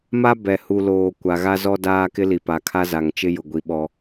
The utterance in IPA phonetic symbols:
ma˦ bɛ˨hu˨loː˨ kʷa˨ɣa˦zɔ˦ daː˦kɪ˦li˨pa˨ kʰa˦za˨ŋt͡ʃɪ˦ jʊ˨ɡʷi˨ ɓɔ˦

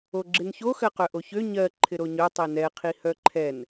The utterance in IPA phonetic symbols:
oɡ͡ǁɪnço xɜqœʔoçø ɲɜ ǃʰɪɾoɲœ tˤinɛ qʰihœǃʰɛn

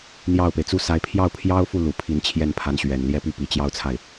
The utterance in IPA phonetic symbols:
n̪jɑ˥˩ʊ̯pe˩ɪ̯ t͡su˥˩sa˧˥ɪ̯ pʰjɑ˥˩ʊ̯pʰjɑ˥ʊ̯fu˥˩ lu˨˩pʰi˧˥n t͡ɕʰjɛ˥˩npʰa˧˥n ɕɥɛ˨˩n ljɛ˥˧py˥˩ pi˨˩t͡ɕjɑ˥ʊ̯t͡sʰa˥˩ɪ̯

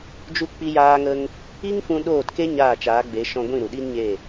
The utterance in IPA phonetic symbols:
d͡ʒu˧k͡pi˧ jaː˧ŋə˧ŋ | i˦ŋfũ˧ ɗoː˦˨tke˦ ɲaː˦˨t͡ʃaː˨˦ɡ͡be˨˦ ʃɔ̃˧ɡʷĩ˦˨ ɾu˨ɗi˦nɲe˦˨

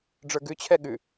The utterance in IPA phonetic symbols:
ɖ͡ʐə˞ɡʉt͡ɕʰɛ ɠʉ

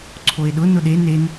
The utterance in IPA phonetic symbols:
ǀʰoe̯ɗʊ nʊɗe nen

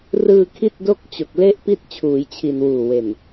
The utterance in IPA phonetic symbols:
rɯː˧ kʰi˥˩t̚do˥˩k̚t͡ɕo˨˩k̚ le˦˥ʔ pi˥˩t̚t͡ɕʰuː˩˦jt͡ɕʰi˨˩n wuː˨˩we˨˩n

